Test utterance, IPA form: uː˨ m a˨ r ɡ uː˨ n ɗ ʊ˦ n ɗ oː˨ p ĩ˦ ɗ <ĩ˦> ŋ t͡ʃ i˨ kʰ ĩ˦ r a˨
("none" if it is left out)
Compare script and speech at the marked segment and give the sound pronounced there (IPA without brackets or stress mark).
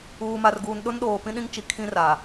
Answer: ĩ˦